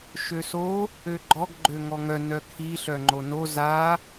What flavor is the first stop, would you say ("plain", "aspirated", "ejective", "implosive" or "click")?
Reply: click